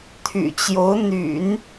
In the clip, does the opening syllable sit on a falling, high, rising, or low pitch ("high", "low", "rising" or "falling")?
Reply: low